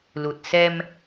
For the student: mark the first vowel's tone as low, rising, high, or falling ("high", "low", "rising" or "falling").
low